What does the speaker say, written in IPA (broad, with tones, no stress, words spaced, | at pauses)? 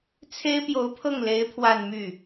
t͡sʰe˥ɪ̯pjo˧˥ʊ̯pʰɤ˥˩ŋle˧˥ɪ̯ pʰwa˥˧nmy˥˩